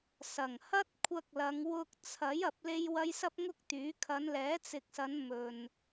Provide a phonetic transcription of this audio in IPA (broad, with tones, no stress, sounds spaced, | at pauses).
s ɐ˨˩ ŋ h ɐ˥ t̚ kʷʰ ɐ˧ k̚ l ɐ˨˧ ŋ w ʊ˧ k̚ t͡sʰ ɐ˨˥ j ɐ˨˥ p̚ l e˥ j w ɐ˥ j s ɐ˥ p̚ ŋ ʊ˥ k̚ t̪ yː˨˥ kʰ ɐ˨˧ n l ɛː˨˥ t͡s ɪ˨ k̚ s ɐ˨˧ n m ɵ˨ n